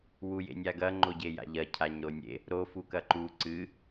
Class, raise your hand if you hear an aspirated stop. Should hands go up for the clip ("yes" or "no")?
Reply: yes